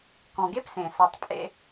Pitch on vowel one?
low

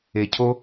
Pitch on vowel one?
low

